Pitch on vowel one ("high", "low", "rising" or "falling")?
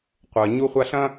low